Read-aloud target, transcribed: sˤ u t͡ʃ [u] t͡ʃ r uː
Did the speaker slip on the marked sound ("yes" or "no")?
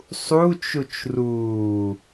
no